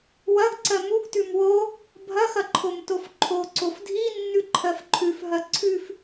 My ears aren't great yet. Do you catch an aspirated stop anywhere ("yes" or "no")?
yes